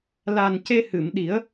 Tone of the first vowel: low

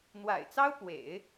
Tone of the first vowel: low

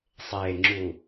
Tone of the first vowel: low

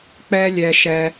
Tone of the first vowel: high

